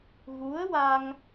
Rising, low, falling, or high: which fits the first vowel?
rising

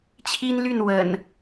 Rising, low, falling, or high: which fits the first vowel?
high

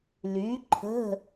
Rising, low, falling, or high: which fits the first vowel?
rising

